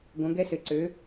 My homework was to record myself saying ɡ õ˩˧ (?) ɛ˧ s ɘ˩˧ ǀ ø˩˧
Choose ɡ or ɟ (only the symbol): ɡ